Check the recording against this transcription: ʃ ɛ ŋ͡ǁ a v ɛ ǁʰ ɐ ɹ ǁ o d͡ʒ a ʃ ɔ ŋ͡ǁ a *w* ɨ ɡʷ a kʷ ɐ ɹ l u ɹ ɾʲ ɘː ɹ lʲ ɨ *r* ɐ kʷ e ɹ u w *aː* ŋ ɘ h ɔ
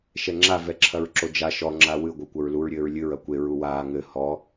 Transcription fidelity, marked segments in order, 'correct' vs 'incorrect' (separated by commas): correct, incorrect, correct